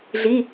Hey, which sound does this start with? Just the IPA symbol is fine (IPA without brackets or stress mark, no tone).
ɮ